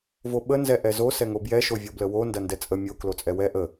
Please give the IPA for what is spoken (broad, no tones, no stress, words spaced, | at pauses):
voɓənzɛ ʔɛzo sɛŋobjɛʃo vʲobləwo ndɐndɛt͡sʼə mʲo klot͡sʼɛwɛ ʔə